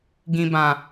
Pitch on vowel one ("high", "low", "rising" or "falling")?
low